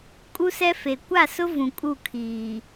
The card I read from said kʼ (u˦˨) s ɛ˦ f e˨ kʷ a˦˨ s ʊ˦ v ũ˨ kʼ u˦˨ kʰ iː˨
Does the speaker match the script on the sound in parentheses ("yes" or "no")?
no